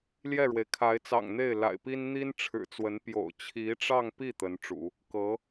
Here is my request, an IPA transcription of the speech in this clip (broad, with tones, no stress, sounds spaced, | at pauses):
l j ɛ˥˩ ɻ w e˩ ɪ̯ kʰ a˧˥ ɪ̯ t͡s ɑ̰˨˩ ŋ n̪ e˥˩ ɪ̯ l a̰˨˩ ɪ̯ p i˥ n n̪ i˥ n ʈ͡ʂʰ ɻ̩˨˩ t͡s w ə˧˥ n p j o̰˨˩ ʊ̯ t͡ɕʰ i˧˥ ʈ͡ʂ ɑ˥˧ ŋ p i˥˩ t̪ ə˧˥ n ʈ͡ʂ ṵ˨˩˦ | k ɤ˧˥